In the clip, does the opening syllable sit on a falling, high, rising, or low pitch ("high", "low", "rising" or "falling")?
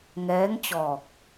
rising